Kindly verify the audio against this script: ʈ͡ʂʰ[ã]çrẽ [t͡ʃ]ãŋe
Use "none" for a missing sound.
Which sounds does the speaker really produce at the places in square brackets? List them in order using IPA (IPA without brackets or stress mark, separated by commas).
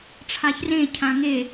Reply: a, cʰ